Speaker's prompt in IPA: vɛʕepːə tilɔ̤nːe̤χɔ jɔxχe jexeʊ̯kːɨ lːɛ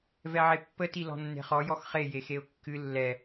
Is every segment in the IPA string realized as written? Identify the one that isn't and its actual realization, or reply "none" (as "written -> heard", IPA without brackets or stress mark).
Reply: none